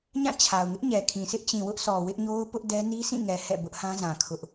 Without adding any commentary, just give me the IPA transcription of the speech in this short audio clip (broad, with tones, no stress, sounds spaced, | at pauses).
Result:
ɲ ã˦˨ t͡ɕʰ a˨ ʊ̯ ŋ ɪ˦ ʔ ɲ ɛ˨ kʰ ĩ˨ sʰ ɪ˦ ʔ t͡ɕ ĩ˨ w ʊ˦ ʔ sʰ ɔ˨ w ɪ˦ ʔ ɲ o˦ ʊ̯ p ʊ˦ ʔ d ɛ˦ n i˦ sʰ ĩ˦˨ ŋ ɛ˨ h ɛ̰˦˨ b ʊ˦ ʔ h ã˦ z ã˨ kʰ ʊ˦ ʔ